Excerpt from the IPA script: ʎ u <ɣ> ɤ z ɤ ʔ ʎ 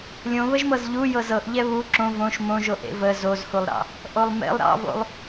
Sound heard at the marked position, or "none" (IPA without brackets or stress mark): j